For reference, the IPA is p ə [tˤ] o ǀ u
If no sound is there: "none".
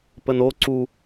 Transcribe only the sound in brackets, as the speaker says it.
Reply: n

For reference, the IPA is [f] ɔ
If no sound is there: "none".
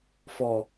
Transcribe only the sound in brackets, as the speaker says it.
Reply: f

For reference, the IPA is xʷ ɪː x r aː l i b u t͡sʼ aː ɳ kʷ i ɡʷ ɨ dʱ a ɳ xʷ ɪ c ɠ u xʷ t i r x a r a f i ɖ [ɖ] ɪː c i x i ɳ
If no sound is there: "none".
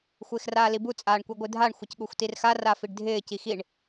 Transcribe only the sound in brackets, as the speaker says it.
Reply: dʱ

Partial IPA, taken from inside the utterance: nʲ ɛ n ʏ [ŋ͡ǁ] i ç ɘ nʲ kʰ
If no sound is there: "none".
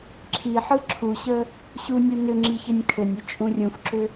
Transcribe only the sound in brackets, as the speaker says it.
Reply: ŋ͡ǁ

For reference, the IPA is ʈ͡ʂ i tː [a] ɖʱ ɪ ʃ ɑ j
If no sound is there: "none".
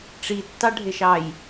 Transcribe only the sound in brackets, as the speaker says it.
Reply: ɑ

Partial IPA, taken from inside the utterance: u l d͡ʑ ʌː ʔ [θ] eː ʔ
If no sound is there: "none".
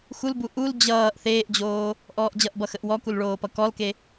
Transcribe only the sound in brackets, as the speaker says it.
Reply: θ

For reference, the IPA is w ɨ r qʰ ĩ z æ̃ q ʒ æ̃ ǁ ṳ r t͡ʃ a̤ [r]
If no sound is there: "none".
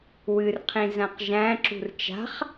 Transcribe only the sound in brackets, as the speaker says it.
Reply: χ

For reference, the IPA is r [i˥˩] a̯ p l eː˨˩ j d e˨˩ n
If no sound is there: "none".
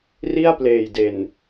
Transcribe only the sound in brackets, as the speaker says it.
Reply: i˥˩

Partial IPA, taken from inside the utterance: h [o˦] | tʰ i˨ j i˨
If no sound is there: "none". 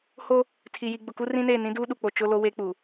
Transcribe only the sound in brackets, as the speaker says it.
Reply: o˦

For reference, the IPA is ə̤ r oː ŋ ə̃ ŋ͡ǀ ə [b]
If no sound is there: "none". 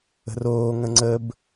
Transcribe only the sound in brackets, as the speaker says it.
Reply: b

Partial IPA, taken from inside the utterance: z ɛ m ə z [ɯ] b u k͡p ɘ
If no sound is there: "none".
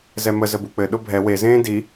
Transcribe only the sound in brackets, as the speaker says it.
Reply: ə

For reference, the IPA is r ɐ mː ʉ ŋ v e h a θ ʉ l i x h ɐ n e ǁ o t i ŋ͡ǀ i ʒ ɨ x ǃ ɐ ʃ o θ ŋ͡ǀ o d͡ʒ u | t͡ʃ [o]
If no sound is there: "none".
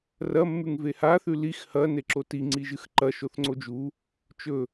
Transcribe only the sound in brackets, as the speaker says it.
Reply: ɵ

